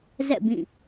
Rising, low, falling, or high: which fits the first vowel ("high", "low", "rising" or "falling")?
falling